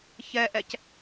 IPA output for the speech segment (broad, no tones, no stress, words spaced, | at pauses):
çɛʔɛc